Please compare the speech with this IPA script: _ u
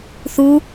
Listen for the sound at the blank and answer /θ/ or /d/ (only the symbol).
θ